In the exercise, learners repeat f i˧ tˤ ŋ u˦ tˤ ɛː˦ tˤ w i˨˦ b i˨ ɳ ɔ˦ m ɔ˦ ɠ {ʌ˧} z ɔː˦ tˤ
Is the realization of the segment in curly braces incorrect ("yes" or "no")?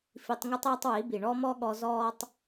yes